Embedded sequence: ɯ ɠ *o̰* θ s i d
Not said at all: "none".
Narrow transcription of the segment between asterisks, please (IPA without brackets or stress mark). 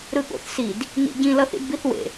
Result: o̰